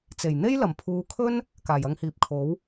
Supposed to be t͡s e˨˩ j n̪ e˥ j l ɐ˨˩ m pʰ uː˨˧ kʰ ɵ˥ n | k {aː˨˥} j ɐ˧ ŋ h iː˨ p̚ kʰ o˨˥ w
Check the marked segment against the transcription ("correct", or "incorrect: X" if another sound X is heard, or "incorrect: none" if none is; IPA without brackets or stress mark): incorrect: aː˨˩